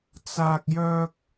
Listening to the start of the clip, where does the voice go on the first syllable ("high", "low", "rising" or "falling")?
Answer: high